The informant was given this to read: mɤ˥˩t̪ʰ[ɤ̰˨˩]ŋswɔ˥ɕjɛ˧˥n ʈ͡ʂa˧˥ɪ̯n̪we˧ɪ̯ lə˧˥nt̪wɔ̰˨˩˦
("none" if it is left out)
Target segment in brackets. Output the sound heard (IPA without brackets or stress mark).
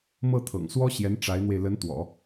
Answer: ɤ̰˨˩